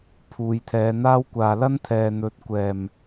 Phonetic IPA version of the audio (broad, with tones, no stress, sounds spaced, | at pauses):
pʰ uː˨˧ j t̪ʰ ɛː˨˧ n̪ aː˥ w kʷ aː˨ l ɐ˥ n t̪ʰ ɛː˨ n̪ ɵ˨˥ t̚ kʷ ɛː˨˩ m